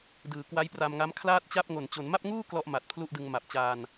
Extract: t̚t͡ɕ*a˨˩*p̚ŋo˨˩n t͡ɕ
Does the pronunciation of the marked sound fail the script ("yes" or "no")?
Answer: yes